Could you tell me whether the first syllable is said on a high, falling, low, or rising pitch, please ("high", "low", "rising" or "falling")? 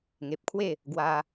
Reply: low